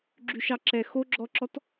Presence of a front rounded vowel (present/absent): present